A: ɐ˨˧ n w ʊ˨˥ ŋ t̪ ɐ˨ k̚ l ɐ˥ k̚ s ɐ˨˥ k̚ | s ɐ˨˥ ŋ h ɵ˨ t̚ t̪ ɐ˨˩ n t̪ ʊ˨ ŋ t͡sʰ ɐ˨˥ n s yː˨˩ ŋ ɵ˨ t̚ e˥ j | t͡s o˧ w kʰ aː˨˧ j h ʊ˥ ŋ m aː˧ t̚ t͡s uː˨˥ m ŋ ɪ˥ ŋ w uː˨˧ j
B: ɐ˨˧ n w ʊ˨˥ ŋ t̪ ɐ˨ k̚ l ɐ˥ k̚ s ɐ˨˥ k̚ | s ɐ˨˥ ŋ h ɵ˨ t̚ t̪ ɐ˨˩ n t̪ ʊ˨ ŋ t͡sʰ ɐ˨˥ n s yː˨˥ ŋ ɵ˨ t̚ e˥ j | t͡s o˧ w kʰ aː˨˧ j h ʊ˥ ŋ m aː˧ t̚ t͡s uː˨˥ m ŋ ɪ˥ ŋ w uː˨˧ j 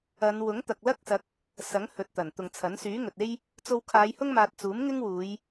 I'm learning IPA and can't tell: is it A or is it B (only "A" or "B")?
B